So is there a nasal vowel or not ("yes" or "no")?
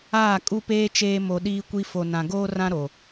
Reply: yes